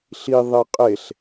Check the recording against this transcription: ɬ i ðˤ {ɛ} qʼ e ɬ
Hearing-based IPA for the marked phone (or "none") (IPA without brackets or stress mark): e